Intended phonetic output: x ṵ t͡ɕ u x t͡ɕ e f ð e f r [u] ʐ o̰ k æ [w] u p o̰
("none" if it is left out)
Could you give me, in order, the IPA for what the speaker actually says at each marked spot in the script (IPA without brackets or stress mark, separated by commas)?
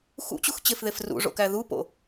ṵ, ð